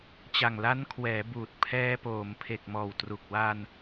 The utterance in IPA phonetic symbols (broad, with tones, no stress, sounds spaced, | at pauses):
t͡ɕ a˨˩ ŋ l a˦˥ n kʰ w ɛː˩˦ b uː˨˩ t̚ pʰ ɛː˧ p oː˩˦ m pʰ e˨˩ k̚ m ɔː˨˩ w t r u˨˩ k̚ w a˧ n